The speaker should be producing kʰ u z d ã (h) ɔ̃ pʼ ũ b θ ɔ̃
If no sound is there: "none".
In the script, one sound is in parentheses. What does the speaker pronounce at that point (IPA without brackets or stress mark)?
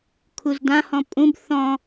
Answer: h